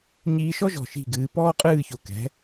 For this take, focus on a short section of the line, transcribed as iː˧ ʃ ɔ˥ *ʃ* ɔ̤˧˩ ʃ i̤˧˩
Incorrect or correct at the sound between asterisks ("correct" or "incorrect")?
incorrect